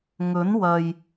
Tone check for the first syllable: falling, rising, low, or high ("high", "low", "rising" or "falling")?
rising